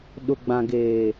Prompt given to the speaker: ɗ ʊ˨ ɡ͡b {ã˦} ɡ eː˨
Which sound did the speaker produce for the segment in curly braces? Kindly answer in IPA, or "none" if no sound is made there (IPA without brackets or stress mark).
ã˨